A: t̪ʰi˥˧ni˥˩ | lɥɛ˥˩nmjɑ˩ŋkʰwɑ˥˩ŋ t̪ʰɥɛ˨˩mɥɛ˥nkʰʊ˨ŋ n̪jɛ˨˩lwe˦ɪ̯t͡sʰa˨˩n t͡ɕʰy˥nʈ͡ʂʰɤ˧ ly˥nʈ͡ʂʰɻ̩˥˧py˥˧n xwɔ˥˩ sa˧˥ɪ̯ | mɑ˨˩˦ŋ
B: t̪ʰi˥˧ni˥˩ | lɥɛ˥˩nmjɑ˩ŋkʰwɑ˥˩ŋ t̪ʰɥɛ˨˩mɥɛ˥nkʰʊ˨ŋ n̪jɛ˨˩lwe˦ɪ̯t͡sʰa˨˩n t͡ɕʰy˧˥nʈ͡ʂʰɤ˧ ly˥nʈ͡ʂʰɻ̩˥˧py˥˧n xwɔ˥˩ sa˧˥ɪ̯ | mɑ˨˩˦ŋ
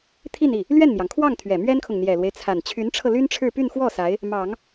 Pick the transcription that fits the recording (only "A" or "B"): B